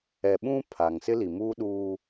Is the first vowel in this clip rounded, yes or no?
no